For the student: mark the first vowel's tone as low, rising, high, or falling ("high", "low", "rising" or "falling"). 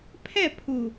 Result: falling